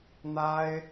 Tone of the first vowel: high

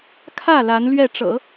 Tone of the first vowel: falling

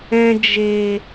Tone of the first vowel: low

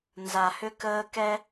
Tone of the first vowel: low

